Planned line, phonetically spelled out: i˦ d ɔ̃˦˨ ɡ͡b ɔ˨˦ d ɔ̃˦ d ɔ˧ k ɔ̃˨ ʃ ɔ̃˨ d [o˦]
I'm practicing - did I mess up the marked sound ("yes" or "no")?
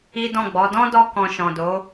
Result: yes